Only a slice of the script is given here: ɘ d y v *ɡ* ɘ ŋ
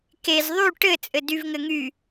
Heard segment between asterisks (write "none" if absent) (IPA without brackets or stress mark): ŋ